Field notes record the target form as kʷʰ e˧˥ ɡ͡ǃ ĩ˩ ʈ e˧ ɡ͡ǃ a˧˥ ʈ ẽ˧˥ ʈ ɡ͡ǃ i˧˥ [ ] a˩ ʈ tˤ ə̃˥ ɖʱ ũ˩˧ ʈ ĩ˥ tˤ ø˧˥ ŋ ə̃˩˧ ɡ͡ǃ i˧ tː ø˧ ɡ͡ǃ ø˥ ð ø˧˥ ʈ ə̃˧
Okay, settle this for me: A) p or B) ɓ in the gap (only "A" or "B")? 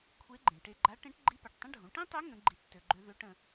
A